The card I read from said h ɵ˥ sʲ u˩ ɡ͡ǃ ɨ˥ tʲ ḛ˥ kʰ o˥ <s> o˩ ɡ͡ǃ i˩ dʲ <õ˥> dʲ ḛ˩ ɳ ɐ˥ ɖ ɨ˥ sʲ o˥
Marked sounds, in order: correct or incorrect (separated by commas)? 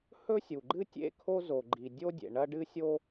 incorrect, incorrect